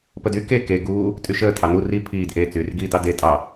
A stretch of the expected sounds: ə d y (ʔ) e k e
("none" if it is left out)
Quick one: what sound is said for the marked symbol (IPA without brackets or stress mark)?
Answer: k